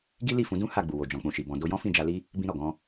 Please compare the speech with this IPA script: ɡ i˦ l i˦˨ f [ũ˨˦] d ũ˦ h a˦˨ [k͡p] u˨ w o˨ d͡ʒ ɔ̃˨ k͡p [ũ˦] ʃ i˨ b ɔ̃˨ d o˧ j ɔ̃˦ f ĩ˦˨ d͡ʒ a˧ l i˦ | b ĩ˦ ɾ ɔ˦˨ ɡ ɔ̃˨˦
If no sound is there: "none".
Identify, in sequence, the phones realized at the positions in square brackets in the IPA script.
ũ˨˦, ɡ͡b, ũ˨

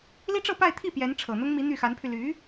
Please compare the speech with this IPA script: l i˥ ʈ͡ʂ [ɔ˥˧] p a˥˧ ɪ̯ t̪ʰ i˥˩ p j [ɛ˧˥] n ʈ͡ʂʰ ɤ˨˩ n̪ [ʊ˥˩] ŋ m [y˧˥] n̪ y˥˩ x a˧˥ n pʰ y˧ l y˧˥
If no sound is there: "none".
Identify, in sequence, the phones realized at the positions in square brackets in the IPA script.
ɤ˥˧, ɛ˧˥, ʊ˥, i˧˥

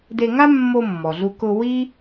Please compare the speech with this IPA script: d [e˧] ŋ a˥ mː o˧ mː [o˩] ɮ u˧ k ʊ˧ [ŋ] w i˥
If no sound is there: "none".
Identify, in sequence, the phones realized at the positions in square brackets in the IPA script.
e˧, ɔ˩, none

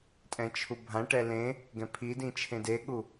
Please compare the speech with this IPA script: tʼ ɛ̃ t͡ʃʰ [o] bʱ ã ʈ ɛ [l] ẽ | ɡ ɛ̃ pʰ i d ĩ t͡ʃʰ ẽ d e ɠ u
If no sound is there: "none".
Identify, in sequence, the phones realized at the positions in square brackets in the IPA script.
u, l

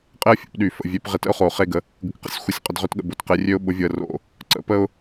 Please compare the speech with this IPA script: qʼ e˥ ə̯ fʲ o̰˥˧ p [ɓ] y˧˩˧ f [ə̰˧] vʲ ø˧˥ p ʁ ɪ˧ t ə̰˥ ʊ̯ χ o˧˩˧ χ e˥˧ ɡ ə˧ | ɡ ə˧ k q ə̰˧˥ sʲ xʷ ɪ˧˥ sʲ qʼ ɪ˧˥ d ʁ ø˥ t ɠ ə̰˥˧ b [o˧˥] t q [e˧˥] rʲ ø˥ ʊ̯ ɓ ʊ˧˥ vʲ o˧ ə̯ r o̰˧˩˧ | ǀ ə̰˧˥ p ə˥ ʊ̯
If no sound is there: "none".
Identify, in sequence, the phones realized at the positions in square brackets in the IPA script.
ɗ, ə̰˧, o˧˥, e˧˥

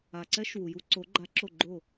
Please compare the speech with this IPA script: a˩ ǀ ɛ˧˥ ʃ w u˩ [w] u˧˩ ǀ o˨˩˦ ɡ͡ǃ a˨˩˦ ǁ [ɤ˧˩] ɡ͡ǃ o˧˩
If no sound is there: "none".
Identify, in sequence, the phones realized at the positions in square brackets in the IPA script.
j, o˧˩

